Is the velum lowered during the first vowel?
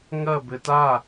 no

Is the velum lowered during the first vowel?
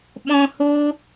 yes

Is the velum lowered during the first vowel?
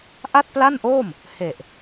no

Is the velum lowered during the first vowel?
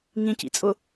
yes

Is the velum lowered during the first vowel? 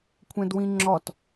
yes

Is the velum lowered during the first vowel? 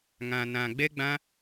yes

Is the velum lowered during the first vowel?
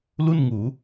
no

